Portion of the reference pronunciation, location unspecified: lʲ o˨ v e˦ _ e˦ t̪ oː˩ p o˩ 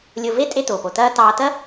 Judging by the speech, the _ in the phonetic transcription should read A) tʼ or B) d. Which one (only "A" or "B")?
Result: A